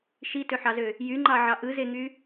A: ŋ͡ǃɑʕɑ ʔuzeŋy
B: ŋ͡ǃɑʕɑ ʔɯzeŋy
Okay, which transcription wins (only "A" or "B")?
B